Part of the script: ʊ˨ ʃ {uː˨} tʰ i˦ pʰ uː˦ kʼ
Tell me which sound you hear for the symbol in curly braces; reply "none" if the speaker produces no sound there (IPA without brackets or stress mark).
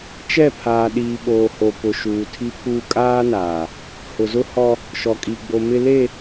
uː˨